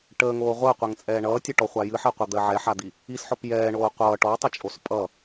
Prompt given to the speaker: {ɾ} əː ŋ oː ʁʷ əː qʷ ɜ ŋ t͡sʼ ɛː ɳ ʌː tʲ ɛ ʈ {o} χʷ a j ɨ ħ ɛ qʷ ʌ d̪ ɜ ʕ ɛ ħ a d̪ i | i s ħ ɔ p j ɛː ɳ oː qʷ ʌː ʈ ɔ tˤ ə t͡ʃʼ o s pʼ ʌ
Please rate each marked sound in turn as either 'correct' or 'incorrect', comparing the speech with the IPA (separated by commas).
incorrect, incorrect